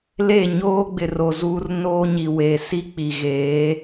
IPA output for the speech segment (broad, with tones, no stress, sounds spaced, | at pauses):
l e˦˨ ɲ oː˦ ɡ͡b ɪ˨ r o˨ z uː˦ r n oː˦ ɲ i˨ w e˨ s i˦ k͡p i˨ ɣ eː˨˦